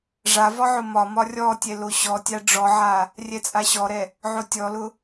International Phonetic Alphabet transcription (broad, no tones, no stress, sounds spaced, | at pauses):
ʐ a v ɒ ʕ ʊ m ɒ m ɒ rʲ ɔ tʲ ɛ l o ɕ ɔ tʲ a ɖ͡ʐ ɔ ʕ a | rʲ ɛ t͡sʼ a ɕ ɔ ɾ ɛ | ʕ o tʲ ɔ l ʊ